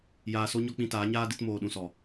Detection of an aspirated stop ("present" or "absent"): absent